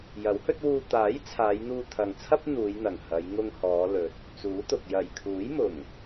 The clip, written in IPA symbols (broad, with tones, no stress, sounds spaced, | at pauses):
j ɐ˨˥ w h ɵ˥ t̚ w uː˧ t̪ aː˨˥ j t͡sʰ aː˨˧ j n̪ uː˧ t̪ʰ ɐ˨ ŋ t͡sʰ ɐ˥ p̚ n̪ uː˨˧ j n̪ ɐ˨˩ ŋ h ɐ˨˧ j ŋ ʊ˧ ŋ h ɔː˨˧ l ɵ˨ t̚ | t͡s uː˨˥ t̪ ʊ˨ k̚ j ɐ˨˩ j kʰ uː˨˥ j m ʊ˨˩ ŋ